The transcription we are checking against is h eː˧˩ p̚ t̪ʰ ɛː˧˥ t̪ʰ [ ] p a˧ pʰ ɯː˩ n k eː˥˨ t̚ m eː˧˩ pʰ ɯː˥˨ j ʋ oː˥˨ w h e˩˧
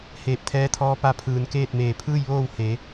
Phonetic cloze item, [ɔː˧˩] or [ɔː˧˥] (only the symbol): ɔː˧˥